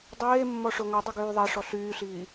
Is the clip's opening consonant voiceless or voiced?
voiced